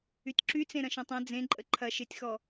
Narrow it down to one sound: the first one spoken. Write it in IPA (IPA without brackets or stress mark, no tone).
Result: y